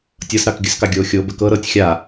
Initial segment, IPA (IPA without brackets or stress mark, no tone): tʲ